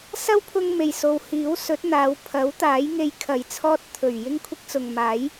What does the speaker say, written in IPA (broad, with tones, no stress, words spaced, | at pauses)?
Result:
sɐ˥wpʰʊ˧ŋ me˨˩jso˨w hiː˨˥wsɵ˨˥t̚n̪aː˨˧w pʰɐ˨˥wt̪aː˨˥jŋe˧jkʰɐ˨j t͡sʰɔː˥t̚ t̪ʰɵ˨˩ɥ jɪ˥ŋkʷʰɪ˥k̚t͡sʊ˨ŋ maː˨˥j